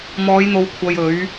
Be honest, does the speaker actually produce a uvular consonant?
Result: no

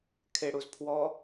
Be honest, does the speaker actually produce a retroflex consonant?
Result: yes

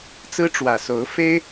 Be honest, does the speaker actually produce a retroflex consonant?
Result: yes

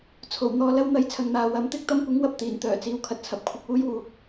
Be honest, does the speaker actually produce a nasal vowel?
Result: no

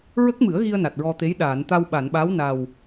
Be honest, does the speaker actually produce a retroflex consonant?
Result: no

